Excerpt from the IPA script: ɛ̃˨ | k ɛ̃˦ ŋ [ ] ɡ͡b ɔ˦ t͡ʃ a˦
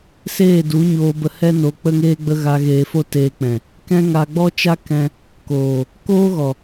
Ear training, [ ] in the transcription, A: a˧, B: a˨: A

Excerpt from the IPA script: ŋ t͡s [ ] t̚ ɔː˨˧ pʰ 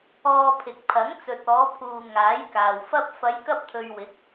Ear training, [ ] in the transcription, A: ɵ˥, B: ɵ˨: B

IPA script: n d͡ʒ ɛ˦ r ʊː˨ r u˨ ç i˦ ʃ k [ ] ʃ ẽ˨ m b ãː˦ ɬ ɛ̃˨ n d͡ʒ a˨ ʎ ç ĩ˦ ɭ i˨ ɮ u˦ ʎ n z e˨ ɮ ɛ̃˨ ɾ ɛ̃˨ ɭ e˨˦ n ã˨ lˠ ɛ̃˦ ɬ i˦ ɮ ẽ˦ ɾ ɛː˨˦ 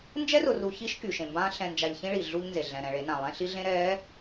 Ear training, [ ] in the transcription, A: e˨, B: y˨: B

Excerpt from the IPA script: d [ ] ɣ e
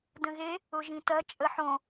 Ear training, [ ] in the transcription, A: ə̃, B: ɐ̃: A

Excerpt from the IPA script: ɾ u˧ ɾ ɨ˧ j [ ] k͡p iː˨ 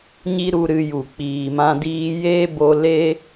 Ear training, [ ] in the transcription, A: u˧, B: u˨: B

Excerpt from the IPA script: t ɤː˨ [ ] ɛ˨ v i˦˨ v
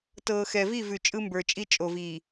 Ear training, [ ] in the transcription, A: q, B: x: B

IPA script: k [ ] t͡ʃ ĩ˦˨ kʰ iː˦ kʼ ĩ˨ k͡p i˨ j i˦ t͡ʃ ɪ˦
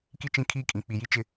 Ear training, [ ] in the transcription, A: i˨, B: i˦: B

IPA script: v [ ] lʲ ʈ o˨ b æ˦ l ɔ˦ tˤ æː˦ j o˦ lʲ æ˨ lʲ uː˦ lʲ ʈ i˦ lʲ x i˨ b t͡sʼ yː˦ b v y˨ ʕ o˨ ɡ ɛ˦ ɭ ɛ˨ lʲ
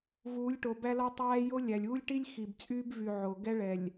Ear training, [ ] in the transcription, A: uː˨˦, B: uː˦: A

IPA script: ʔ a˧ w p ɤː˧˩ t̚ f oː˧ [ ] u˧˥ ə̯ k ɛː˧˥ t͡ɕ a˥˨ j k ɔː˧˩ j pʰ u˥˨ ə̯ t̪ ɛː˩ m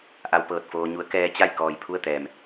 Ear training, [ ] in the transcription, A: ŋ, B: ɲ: B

